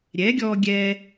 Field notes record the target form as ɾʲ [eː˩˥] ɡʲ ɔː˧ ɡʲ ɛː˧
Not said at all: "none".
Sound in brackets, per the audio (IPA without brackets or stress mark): ɛː˩˥